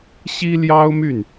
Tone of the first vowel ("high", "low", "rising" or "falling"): high